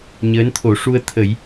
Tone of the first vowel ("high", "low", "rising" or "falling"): rising